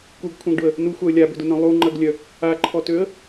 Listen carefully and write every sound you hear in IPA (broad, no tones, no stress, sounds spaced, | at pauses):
k u ɡ kʷʰ œ̃ ɡ ɖ ʊ ə̯ | n u xʷ a ə̯ lʲ a b ʏ d ʊ n œ̃ lˠ u ŋ͡ǃ ɐ ɡ lʲ œ | a ǃʰ ɔ t ø ə̯